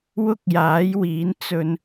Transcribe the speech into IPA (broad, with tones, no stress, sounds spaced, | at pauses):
w ʊ˥ k̚ j aː˨˥ j w iː˨˥ n t͡s ɵ˧ n